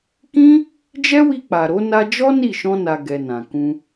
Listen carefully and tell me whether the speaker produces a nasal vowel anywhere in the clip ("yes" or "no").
yes